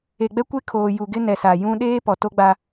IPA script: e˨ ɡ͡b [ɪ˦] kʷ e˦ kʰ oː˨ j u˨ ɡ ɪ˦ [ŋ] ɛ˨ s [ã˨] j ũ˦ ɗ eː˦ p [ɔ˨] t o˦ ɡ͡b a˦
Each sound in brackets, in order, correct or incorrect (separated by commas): incorrect, incorrect, incorrect, correct